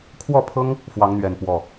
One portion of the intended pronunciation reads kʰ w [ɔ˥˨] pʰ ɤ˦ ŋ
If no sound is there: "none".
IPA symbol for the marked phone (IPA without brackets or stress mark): ɔ˥˨